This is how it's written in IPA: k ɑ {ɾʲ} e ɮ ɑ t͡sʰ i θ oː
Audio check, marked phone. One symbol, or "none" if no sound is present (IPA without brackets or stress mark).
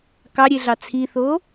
ɾʲ